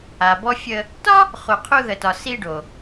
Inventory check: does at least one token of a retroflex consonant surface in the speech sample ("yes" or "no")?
yes